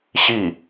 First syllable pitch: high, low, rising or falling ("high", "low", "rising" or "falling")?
falling